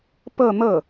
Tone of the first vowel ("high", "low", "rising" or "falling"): falling